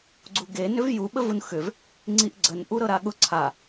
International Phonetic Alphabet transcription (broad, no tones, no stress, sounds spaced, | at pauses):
ɡ͡ǀ u ɡ e n ʏ v j u ɓ ə v u n x ʏ v | ŋ͡ǀ i ʔ ɡ͡ǀ ə n ʔ u ɾ ɤ ɾ a ɠ ʊ ǀʰ a